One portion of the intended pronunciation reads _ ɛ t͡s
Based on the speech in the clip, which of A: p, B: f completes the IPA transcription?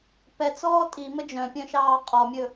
A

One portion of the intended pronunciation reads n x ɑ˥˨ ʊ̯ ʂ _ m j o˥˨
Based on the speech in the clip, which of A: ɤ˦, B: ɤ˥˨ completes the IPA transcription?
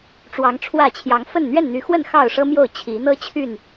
A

